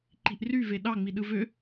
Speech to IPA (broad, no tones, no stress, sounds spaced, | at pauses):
ǃ i̤ ʔ r y v e ɗ ɑ ŋ͡m i ɗ ɯ v ø